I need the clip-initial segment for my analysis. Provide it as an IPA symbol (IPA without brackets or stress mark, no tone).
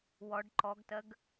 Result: w